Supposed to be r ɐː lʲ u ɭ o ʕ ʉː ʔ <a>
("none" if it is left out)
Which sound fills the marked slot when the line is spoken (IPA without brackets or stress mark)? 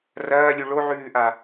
a